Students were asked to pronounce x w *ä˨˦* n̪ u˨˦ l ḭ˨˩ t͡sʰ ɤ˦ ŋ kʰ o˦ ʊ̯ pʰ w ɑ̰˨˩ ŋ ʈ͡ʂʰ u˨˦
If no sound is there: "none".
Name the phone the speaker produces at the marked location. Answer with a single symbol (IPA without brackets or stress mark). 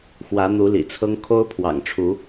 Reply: ä˨˦